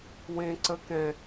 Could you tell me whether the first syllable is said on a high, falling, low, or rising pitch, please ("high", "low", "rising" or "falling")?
high